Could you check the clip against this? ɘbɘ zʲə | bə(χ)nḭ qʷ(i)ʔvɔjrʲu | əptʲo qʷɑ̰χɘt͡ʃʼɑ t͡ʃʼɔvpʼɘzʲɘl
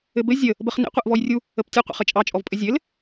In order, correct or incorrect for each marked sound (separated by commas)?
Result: correct, correct